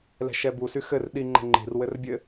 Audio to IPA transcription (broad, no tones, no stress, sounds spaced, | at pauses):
l ɛ̤ ʃ ɛ b u s y x ɘ r ɗ i ŋ͡ǃ ə̤ ŋ͡ǃ i̤ r w ɘ r bʲ ɘ